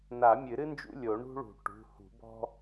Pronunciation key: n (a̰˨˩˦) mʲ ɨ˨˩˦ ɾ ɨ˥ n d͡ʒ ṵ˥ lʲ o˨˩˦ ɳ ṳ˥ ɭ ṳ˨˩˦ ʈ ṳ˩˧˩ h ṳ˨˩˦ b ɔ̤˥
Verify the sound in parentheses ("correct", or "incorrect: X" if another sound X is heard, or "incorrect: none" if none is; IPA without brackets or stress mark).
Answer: incorrect: a˨˩˦